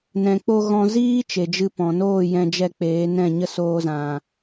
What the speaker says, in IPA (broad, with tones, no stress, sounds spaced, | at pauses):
n ɛ̃˨ k͡p o˧ ɣ ɔ̃˦ z iː˦ t͡ʃ e˨ d͡ʒ ɨ˧ p ɔ̃˨ n oː˦˨ j ɛ̃˧ d͡ʒ ɛ˧ k͡p eː˨˦ n ɛ̃˦˨ ɲ ə˦ s oː˦ z ã˧